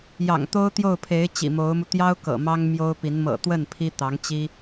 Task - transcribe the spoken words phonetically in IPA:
j ɑ̰˨˩ ŋ t̪ o˥ ʊ̯ t̪ j o˥˩ ʊ̯ pʰ e˧˥ ɪ̯ t͡ɕ ḭ˨˩ m o˧˥ ʊ̯ m u˧ t̪ j ɑ˥ ʊ̯ k ɤ̰˨˩ m ɑ˥ ŋ m j o˥ ʊ̯ p i˧˥ n m ɤ̰˨˩ t̪ w ə˥˩ n pʰ i˥ t̪ ɑ˧˥ ŋ t͡ɕ i˥

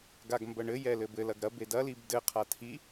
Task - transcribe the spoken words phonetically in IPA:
ɡ a ɡ m b ɐ ɳ ɘ j ɛ l ɘ b ɘ l ɐ ɡ ɾ ɐ b e d ɐ l i b d ɘ qʰ a tʰ i

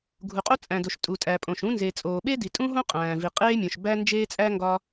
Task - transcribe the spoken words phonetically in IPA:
ɡʱ u˩ qʼ o˥ t͡sʼ æ̃˩ d o˩ ʃ tʼ u˩ tʼ æ˩ pʼ õ˩ ʃ ũ˥ n z e˩ t͡sʼ oː˩ ɓ e˥ d i˩ tʼ ũ˥ ɦ õ˥ qʼ æ̃ː˩ v i˩ qʼ eː˥ mʲ õ˩ ʃ b æ˥ n d͡ʒ eː˥ t͡sʼ æ˥ ŋ ɡ ɒ˥

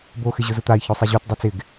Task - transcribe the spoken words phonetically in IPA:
b o x ɪ ʑ ʊ z ʊ t̪ a i̯ ç o sˤ i ʑ o t dˤ u t͡s ɪ ɡ

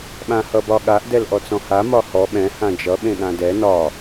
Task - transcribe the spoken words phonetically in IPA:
ɓ ã h ʌ b ɒ ɠ a ʔ d ɛ l ʔ ɔ t͡s ɔ̃ h a m ɒ h ɔ ɓ ɛ̃ h ã d͡ʒ ʌ ɓ ẽ ɠ ã d ɛ n ɒ

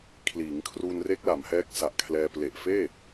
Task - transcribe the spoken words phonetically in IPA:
kʰ l iː˩˦ ŋ kʰ r u˧ n r e˦˥ k̚ l a˩˦ m h ɛː˦˥ k̚ s a˨˩ ʔ kʰ l ɛː˧ p l e˨˩ ʔ f eː˥˩

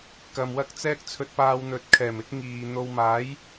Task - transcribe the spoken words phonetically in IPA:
k ɐ˨ m w ɐ˥ k̚ t͡s ɛː˥ k̚ t͡sʰ ɵ˧ t̚ p aː˧ w n̪ ɵ˨ t̚ kʰ ɛː˨˩ m ɪ˥ k̚ ŋ iː˨ n̪ o˧ w m aː˨˥ j

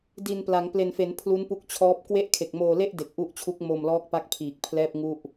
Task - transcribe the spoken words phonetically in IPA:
d i˨˩ n p l a˩˦ ŋ p l e˨˩ n f e˩˦ n pʰ l u˦˥ n p u˦˥ k̚ t͡ɕʰ ɔː˦˥ p̚ k w e˥˩ ʔ kʰ e˨˩ k̚ m oː˧ l e˥˩ ʔ d e˨˩ k̚ ʔ u˦˥ ʔ t͡ɕʰ u˦˥ k̚ m o˧ m l ɔː˦˥ k̚ p a˦˥ k̚ pʰ iː˨˩ k̚ pʰ l ɛː˥˩ p̚ ŋ u˥˩ ʔ

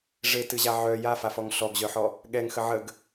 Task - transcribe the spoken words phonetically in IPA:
ʐ e t ɨ ʑ a ʕ œ j a f a f ɔ ŋ ɬ ɔ ɡ ʑ œ ħ ɔ | ɠ ɛ ŋ x ə ʕ ə ɡ

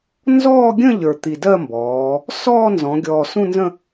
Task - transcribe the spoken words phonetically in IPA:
n z ɔː˥˧ ɡʲ ə̃˥˧ ʎ ə˞˨˩ t̪ i˨˩ d ɜ˥˧ m b ɔː˩˧ | s ɔː˥˧ n z ɔ̃˩˧ ɡʲ ɔː˨˩ s ũ˥˧ n z ə̃˥˧

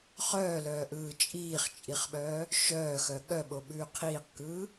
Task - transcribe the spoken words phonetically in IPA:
χ œː l œː ʔ ɯː t͡ʃʼ iː χ t͡ʃʼ i χ ɓ œː | ʃ œː x œ ɠ œ ɓ o ɓ ʉː qʰ iː q k ɯː

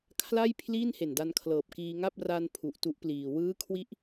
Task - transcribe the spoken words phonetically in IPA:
kʰ l a˥˩ j pʰ l iː˥˩ n h e˨˩ n d a˧ n kʰ l ɤː˨˩ p̚ k iː˧ ŋ a˥˩ p̚ r a˧ n pʰ u˨˩ ʔ t u˦˥ ʔ p l iː˨˩ w ɯː˦˥ kʰ w i˦˥ ʔ

